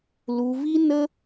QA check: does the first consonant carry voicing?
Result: yes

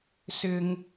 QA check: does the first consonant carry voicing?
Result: no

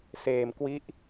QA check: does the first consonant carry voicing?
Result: no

